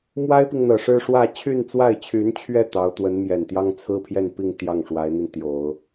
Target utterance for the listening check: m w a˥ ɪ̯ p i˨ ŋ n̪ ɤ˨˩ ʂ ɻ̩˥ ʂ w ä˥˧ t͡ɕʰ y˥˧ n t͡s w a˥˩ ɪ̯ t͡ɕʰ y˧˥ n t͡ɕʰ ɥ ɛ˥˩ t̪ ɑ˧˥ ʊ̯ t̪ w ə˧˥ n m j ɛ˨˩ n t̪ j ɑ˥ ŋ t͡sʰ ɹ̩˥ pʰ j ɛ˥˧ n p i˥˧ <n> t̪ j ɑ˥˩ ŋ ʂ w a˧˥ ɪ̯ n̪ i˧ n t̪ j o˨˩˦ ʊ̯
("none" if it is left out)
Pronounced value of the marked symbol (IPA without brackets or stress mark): ŋ